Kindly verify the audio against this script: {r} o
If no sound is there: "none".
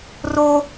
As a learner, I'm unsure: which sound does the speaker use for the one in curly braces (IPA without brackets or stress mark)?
r